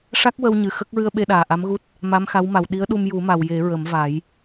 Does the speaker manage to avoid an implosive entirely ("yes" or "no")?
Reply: no